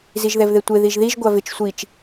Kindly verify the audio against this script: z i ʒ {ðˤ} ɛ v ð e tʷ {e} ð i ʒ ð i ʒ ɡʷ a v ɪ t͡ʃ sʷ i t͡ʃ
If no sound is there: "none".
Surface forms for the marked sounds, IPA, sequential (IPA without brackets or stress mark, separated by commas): ð, e